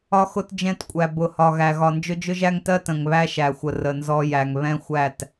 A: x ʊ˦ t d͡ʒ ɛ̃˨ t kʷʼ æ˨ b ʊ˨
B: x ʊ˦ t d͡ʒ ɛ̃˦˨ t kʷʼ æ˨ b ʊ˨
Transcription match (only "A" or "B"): B